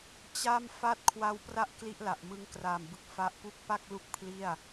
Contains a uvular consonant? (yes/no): no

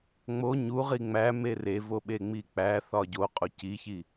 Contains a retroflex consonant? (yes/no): no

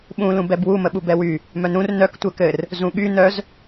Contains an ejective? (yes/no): no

